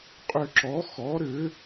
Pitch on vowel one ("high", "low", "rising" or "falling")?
falling